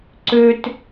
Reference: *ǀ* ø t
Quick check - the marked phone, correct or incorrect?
correct